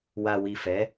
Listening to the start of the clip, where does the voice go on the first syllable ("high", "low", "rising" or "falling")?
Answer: low